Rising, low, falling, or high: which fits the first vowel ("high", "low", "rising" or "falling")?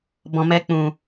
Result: low